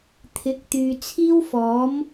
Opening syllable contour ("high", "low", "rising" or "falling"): rising